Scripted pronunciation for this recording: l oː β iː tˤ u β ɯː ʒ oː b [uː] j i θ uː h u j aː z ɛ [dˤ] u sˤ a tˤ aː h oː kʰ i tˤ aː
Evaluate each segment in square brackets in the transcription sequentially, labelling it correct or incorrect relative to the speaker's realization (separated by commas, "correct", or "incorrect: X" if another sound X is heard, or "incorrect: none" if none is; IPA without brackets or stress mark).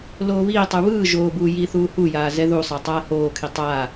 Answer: correct, incorrect: ð